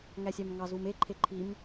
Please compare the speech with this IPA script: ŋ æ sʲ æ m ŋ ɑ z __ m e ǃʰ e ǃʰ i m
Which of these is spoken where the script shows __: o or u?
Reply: u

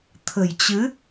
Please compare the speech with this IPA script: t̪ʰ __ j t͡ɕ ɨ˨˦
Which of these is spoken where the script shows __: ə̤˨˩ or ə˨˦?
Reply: ə̤˨˩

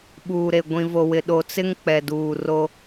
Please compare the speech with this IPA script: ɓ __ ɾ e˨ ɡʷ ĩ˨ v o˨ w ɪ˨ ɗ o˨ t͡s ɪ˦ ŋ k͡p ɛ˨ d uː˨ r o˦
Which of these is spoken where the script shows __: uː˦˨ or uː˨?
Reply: uː˨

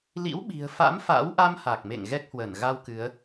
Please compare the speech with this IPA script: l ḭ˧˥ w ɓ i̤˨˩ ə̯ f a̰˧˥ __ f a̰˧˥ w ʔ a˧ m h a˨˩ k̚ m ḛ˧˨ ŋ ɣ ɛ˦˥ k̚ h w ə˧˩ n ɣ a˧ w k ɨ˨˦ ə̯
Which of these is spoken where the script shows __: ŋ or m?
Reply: m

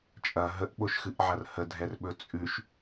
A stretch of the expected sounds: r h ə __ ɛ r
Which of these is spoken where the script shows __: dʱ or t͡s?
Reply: dʱ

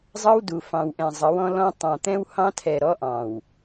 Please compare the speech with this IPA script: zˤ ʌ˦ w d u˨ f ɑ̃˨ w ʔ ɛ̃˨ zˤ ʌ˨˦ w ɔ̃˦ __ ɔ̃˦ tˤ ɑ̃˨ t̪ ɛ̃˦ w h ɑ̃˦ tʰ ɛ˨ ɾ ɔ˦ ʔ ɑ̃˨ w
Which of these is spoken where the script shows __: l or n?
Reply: l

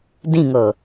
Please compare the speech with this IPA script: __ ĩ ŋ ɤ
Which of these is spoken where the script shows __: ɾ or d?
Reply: d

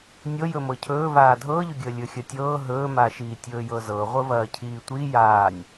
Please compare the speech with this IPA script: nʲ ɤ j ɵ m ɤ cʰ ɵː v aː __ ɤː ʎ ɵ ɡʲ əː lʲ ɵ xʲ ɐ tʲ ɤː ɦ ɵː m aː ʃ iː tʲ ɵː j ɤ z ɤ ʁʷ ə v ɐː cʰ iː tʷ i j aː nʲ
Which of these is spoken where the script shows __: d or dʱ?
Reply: dʱ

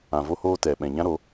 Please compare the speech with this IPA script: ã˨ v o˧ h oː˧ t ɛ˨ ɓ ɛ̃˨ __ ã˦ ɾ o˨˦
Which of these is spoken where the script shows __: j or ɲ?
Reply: ɲ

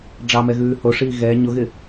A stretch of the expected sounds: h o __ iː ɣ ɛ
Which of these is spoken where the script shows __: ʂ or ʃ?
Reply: ʂ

